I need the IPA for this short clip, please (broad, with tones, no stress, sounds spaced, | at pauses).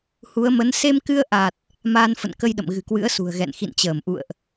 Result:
h u˨˦ ə̯ m ə˨˦ n s e˧ m k ɨ˧ ə̯ ʔ a˨˩ t̚ | m aː˧ n f ə̰˧˨ n k ə˧ j ɗ ə̰˧˨ m ɣ ɨ̤˨˩ k w ɨ̰˧˥ ə̯ s ṳ˨˩ ə̯ ɣ ɛ̰˧˨ n x ḭ˧˨ n t͡ɕ əː˧˩ m ʔ ṵ˧˨ ə̯ ʔ